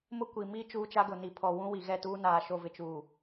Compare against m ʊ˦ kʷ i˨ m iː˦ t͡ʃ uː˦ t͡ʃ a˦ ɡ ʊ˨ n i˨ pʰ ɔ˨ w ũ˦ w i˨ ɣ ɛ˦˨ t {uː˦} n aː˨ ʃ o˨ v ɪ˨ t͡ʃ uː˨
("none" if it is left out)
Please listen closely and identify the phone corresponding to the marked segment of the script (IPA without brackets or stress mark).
uː˦